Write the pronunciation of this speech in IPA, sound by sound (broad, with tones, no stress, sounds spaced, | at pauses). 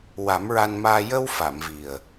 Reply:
w a˨˩˦ m ɹ a˧ n m aː˧ j ə˧ w f a˨˩˨ m v i˨˩ ə̯